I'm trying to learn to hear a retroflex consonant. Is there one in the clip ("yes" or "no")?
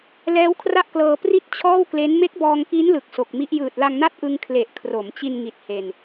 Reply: no